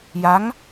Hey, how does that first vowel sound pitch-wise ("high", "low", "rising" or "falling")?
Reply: rising